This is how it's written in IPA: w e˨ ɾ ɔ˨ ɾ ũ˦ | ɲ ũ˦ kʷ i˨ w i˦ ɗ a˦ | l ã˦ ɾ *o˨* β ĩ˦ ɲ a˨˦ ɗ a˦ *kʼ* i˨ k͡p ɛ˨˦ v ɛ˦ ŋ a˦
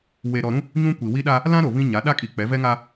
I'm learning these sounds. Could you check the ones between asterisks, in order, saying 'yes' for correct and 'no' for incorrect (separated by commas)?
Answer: yes, yes